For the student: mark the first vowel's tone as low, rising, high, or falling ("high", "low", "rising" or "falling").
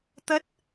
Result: high